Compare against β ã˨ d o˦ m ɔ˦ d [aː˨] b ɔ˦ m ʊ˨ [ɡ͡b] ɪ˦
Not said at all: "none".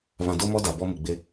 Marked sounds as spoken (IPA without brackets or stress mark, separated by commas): a˨, ɡ͡b